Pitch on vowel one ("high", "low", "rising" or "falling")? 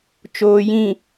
low